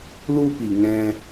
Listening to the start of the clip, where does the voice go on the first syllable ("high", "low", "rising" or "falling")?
high